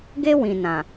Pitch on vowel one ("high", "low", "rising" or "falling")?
high